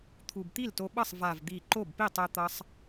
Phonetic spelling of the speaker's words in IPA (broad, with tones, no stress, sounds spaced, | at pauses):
t̪ʰ u˨˩ b t̪ i˥˩ l t o˧ ɓ ʌ˥˩ sˤ v a˨˩ v d̪ i˨˩ ǃ o˥˩ b p i˥˩ tˤ ɛ˧ t̪ ʌ˧ sˤ